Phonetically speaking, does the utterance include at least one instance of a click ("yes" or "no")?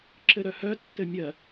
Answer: yes